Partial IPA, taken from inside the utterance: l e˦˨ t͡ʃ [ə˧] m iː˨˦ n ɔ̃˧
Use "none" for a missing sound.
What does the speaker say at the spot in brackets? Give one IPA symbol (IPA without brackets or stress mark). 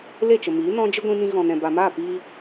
ə˨